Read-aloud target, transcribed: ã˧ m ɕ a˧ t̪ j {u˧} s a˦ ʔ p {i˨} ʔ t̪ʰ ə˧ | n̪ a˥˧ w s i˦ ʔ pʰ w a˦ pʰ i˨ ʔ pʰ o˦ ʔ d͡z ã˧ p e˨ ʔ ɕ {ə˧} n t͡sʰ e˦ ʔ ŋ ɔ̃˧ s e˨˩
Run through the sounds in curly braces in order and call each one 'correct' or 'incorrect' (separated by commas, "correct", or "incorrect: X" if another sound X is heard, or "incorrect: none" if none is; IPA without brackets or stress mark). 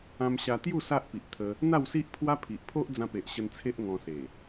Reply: incorrect: u˥˧, correct, correct